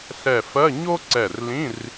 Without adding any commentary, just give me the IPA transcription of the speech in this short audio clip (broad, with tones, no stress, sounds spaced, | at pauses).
ɬ ɛ˧˩ f ɜ˧˥˧ ɲ o˥ ǀ ɛ˧˩ r l ĩ˧˥˧ r